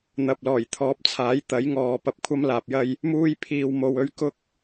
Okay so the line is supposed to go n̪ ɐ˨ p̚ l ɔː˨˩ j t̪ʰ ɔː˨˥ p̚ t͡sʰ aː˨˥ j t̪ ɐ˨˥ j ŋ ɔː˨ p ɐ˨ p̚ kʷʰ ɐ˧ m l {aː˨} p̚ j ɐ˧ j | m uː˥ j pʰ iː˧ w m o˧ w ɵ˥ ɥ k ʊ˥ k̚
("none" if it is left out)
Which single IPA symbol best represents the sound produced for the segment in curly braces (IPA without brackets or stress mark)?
aː˨